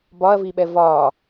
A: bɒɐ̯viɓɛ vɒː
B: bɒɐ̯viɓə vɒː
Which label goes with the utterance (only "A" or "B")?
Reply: A